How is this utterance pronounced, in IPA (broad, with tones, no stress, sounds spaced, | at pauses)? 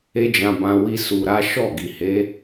e˦ d͡ʒ ã˧ b ã˧ w i˧ s u˧ ɾ a˦ ʃ ɔ˦˨ ɡ i˨ h e˨˦